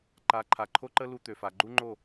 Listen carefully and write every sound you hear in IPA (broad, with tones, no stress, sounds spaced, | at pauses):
ǃ a˨˦ ǃʰ a˨ ǃʰ o˦ ǃ ə˦ l u˦ t̪ ø˨ f a˨ ɡ͡ǃ u˦ ŋ͡ǃ o˦˨